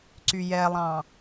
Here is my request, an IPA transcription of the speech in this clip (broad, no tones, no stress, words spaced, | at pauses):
ǀyjɛlˠɑ̃